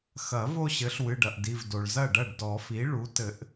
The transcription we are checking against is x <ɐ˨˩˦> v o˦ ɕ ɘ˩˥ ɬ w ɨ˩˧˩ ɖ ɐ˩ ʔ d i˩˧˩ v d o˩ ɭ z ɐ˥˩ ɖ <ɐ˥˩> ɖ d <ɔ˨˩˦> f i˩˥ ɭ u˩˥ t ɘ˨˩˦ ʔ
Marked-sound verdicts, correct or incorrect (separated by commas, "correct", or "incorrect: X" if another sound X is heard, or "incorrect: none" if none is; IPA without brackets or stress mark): correct, correct, correct